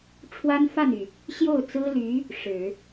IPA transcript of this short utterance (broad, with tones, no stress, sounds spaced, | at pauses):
ʈ͡ʂʰ w a˥ n f a˥˩ n y˩ | ɕ j o˥˩ ʊ̯ t͡s ɹ̩˥ l y˧˥ | ʂ ɻ̩˨˩˦